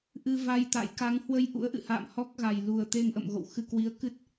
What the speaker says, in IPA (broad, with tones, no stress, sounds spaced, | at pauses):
ʔ ɨ˧ v a˧ j t̪ a̰˧˨ j k a˨˦ ŋ h w ə˧ j ʔ ṵ˧˥ ə̯ ʔ ɨ̰˧˨ h a̰ː˧˨ m h ɔ˦˥ k̚ ɣ a˨˩ j l u˨˩ ə̯ t̪ e˧ ŋ ʔ ə̰˧˨ m ɣ o̰˧˨ w x ɨ˧ k w i˨˦ ə̯ k ɨ˦˥ t̚